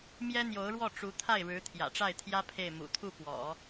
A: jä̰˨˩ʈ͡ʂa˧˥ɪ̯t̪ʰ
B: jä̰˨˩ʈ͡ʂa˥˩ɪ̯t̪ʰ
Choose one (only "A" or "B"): B